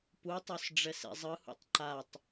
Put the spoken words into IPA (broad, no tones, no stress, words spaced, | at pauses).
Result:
putˤos ɖ͡ʐɛsḛzˤɯhṵtˤ ǃatˤ